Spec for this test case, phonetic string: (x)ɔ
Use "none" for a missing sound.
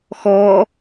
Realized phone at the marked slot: x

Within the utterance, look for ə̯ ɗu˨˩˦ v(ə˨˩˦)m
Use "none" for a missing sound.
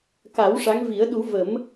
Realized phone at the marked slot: ə˨˩˦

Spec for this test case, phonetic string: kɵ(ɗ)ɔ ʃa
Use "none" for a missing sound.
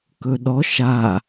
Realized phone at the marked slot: ɗ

